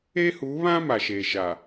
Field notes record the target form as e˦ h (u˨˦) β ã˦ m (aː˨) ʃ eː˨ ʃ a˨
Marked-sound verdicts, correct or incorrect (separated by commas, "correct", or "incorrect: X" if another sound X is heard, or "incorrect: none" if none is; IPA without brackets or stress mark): correct, incorrect: a˨